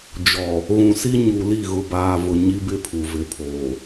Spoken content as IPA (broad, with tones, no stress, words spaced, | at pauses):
d͡ʒɔ˨ | ɣũ˨si˦ ɲu˨li˦˨ɣʊ˨ baː˨ vʊ˨ ɲi˦bɪ˦pʰu˨ vɪ˨pʰoː˨